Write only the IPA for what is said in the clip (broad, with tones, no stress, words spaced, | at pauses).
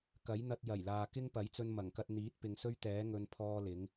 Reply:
kɐ˨˥jn̪ɐ˧t̚ jɐ˨˩j laː˨kɪ˥ŋpɐ˨˥jt͡sɵ˧n mɐ˨˩ŋkɐ˧t̚ n̪iː˨˥t̚pɪ˨ŋsɵ˥ɥt̪ɛː˨˥ ŋɵ˧n pʰɔː˥lɪ˨˥ŋ